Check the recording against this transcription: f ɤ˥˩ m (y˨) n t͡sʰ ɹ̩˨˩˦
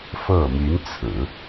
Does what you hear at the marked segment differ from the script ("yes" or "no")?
yes